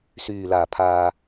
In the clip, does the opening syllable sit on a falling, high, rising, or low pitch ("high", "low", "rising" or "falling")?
low